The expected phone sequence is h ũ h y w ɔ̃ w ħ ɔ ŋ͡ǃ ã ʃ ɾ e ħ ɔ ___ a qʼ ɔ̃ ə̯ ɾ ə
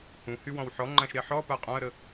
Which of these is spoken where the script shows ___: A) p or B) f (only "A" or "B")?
A